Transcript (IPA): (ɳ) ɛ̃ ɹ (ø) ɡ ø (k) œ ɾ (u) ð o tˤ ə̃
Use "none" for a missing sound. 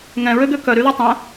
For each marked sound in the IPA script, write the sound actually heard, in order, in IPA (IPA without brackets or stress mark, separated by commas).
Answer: ŋ, ø, k, y